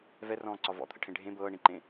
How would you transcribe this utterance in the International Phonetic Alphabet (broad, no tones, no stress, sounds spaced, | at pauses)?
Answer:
v ɛ r ɔ̃ː ǀ ɒ v ɔ̰ t̪ʰ ə̰ ʈʰ ẽ ɖʱ ẽ b ɤː ɳ ĩ ǃ ẽ